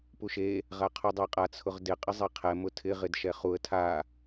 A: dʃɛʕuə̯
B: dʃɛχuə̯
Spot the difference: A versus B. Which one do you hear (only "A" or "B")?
B